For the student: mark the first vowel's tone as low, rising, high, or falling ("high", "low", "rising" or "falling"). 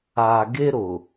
low